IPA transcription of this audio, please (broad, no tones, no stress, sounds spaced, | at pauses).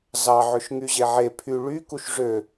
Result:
z ɑ ʕ ø ʃ ŋ y ʑ e ʕ e pʰ y ɭ y k u ʃ ʐ ø